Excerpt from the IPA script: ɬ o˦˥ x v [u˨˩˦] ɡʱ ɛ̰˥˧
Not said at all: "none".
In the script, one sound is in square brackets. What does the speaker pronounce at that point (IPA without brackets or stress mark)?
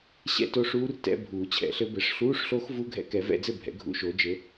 u˧˥˧